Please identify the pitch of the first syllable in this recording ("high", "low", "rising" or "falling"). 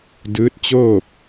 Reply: rising